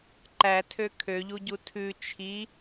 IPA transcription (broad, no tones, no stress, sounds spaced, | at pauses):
ǃ æ tʰ ø kʰ ø ʎ u ɟ u tʰ ʉ t͡ʃʰ i